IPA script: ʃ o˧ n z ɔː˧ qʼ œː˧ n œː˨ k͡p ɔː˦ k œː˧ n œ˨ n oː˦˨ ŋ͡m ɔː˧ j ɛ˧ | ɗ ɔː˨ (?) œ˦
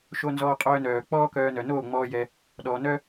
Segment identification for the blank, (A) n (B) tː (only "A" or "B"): A